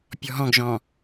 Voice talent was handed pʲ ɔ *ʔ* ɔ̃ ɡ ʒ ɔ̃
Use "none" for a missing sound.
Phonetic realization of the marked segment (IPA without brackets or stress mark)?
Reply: ɦ